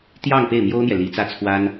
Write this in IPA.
t̪ j ɑ˥˧ ŋ p e˥˩ ɪ̯ m j o˥ ʊ̯ n̪ j ɛ˨ l i˧˥ t͡s ä˥˩ t͡sʰ w a˥ n

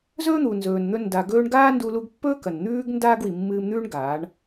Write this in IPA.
z ɵː˦ n̪ u˨ n z ɵː˨ n n̪ ɵ˧ n d a˨ ɡ ɵː˧ ɳ ɡ aː˦ n d u˧ l u˧ ɡ pː ɵː˦ k ɐ˨ n n̪ ʉː˦ ɡ n d aː˦ ɡ w i˨ mː ɨː˧ m n̪ ʉː˦ ɳ ɡ aː˨˦ ɳ

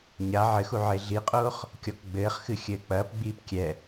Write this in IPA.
ɲ a ʕ ɘ x u ʕ e ɮ i qʼ oː χ | kʲ ɔ k ɡ͡b ɘː χ x ɨ xʲ ɘː k͡p ɐː p ɡ͡b iː p kʲ ɛ

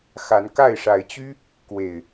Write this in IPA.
x a˨˦ n k a˥˨ ɪ̯ ʂ a˨˦ ɪ̯ t͡ɕ y˦ | k w e˨˩ ɪ̯

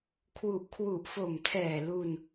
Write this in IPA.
kʰ w u˨˩ ʔ kʰ w u˨˩ ʔ f o˨˩ m tʰ ɛː˨˩ l u˧ n

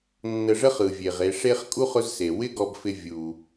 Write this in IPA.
nː ə˨ ʐ ə˦ χ ɯ˩ vʲ e˩ ʁ e˨ ʂ e˦ χ kʼ u˥ χ ʊ˦ z s e˩ w ɪ˦ ɡ ɔ˨ b f ɪ˨ vʲ u˩

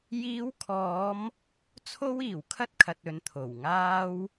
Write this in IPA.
j iː˨˧ w kʰ ɔː˨˧ m | t͡sʰ o˥ w iː˨˩ w kʰ ɐ˥ t̚ kʰ ɐ˨ t̚ ɵ˨˧ n t̪ʰ o˨˩ w ŋ aː˥ w

